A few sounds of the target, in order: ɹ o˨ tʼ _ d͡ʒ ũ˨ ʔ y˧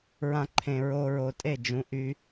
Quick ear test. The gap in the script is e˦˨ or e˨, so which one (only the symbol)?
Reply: e˦˨